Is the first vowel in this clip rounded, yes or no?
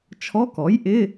yes